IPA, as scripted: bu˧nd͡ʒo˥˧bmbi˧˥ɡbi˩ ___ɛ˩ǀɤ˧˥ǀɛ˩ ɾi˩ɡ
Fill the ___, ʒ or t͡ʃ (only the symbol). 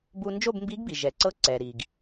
ʒ